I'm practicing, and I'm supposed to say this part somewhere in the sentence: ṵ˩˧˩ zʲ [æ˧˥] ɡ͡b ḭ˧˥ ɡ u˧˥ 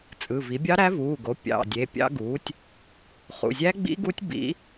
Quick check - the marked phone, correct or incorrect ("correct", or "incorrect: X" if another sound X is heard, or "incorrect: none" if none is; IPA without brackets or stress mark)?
correct